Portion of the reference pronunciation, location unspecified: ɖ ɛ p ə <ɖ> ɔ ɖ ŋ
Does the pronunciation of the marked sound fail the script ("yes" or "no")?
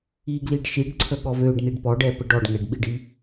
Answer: no